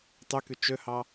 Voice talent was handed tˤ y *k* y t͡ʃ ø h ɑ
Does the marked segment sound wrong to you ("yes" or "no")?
no